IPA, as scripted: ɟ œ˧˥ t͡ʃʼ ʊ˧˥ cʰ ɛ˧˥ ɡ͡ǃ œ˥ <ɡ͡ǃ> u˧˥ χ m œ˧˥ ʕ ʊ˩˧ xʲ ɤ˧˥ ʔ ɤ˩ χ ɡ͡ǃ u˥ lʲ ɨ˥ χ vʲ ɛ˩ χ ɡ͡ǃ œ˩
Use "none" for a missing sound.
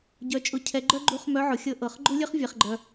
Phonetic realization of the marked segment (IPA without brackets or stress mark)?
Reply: ɡ͡ǃ